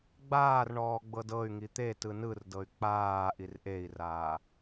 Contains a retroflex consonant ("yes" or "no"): yes